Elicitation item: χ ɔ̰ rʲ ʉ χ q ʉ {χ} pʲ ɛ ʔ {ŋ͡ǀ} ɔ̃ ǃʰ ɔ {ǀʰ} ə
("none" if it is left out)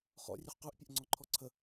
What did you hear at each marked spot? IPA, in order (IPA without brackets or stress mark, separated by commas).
ʔ, ŋ͡ǀ, ǀʰ